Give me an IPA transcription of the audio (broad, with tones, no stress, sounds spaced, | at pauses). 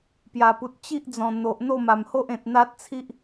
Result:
p j a˨˩ p u˨ t̚ t͡ɕ i˦ ʔ d͡z ɔ̃˨˩ n̪ o˨ ʔ n̪ o˥˧ m a˨˩ m h o˦ ʔ ẽ˨ t̚ n̪ a˦ t̚ t͡sʰ i˦ ʔ